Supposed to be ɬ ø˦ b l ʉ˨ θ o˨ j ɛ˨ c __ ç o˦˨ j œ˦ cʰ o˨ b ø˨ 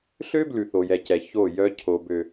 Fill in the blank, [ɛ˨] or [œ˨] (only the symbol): ɛ˨